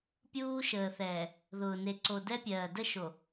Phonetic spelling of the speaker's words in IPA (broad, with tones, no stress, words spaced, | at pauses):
pʲuː˦ʃəː˨θɛː˨ | ðʊː˨ne˨ǀo˨ dɛ˦pʲɜː˨ də˦ʃo˨